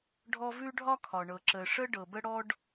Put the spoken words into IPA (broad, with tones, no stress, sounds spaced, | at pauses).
ɖʱ ɔ˥ v ʉ˥ ɖʱ ɒ˥ kʰ ɒ˩ ɳ ɤ˩ ǁ ə˩ ʂ ə˥ ɖ ɤ˩ b ə˥ ɽ ɔ˥ ɖ